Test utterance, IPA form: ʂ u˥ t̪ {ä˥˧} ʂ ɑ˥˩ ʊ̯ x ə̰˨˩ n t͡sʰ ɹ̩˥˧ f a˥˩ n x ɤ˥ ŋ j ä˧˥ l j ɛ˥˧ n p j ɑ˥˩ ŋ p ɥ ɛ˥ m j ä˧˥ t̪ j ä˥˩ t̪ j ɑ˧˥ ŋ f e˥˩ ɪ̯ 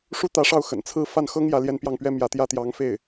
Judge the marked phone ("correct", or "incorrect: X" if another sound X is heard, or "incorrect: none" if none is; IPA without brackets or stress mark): incorrect: ä˧˥